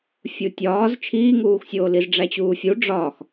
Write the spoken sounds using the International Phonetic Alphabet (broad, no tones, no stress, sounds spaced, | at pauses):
fʲ u tʲ ɒː z t͡ʃʰ iː ŋ uː x sʲ oː l i z ɖ͡ʐ æ t͡ɕ uː fʲ u ɖ͡ʐ ɒ x